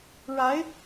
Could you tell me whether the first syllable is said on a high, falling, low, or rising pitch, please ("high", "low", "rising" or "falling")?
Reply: rising